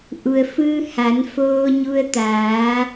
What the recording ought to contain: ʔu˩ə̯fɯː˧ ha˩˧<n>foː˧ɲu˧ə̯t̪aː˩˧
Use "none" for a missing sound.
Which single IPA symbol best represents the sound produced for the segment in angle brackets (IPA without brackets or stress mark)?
n